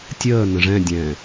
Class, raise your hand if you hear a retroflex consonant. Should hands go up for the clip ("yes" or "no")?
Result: yes